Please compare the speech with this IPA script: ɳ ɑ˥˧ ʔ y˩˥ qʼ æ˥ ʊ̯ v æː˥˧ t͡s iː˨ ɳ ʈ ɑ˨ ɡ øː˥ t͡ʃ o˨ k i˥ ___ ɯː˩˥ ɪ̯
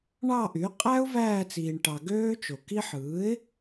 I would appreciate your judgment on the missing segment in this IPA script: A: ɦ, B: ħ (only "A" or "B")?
B